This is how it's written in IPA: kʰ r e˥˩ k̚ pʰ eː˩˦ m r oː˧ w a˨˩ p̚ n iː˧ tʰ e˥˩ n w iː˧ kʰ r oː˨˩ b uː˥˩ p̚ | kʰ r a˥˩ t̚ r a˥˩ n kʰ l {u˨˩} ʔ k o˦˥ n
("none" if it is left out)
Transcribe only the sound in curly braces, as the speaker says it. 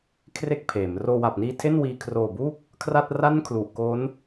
u˨˩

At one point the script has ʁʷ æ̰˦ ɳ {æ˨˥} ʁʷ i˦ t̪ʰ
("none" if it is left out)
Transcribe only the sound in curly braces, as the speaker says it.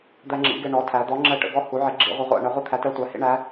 ɛ˨˥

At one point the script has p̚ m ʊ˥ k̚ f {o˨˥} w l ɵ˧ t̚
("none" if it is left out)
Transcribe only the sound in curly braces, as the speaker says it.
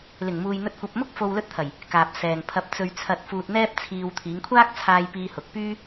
o˨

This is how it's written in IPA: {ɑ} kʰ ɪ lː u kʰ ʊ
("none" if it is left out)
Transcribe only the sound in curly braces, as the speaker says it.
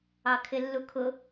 ɑ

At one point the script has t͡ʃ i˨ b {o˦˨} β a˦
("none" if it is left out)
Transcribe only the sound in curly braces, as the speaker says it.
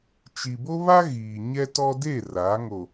o˦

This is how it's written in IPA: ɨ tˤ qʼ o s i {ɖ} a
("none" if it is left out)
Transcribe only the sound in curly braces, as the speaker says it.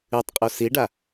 ɖ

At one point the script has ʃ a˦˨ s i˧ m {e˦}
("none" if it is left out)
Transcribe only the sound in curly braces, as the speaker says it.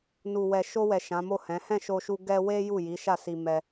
ɛ˦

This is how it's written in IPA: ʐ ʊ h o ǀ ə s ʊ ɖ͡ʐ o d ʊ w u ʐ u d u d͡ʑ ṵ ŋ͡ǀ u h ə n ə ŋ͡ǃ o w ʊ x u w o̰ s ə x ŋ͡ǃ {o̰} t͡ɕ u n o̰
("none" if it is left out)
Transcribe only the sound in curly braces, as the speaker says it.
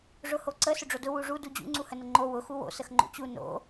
o̰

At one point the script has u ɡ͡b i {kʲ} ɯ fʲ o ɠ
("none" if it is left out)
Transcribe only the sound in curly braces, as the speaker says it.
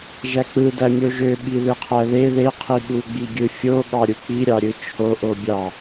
ɡʲ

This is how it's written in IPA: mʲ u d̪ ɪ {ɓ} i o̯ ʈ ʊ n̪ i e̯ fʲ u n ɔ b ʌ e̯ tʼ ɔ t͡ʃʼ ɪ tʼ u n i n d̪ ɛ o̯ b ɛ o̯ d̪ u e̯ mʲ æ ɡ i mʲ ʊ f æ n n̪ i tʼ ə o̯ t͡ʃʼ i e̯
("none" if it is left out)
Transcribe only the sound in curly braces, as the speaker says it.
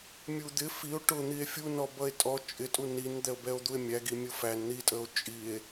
f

